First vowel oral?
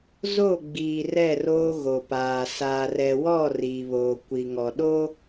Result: yes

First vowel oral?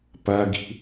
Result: yes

